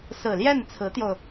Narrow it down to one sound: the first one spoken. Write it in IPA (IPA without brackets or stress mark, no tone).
s